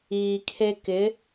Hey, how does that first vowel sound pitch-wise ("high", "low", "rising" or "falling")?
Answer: high